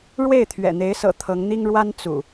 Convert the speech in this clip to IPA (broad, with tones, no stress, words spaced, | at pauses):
ɻwe˥˨ɪ̯ t̪ʰɥɛ̰˨˩n̪e˨˦ɪ̯sɤ̰˨˩ t̪ʰɤ˨˦ŋn̪i˦ŋɻwa˦n t͡sṵ˨˩